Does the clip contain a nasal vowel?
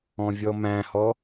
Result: yes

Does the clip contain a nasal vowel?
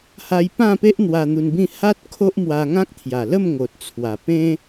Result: yes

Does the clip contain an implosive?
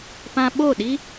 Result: yes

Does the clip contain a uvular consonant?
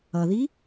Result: no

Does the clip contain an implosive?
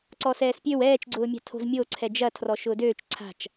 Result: no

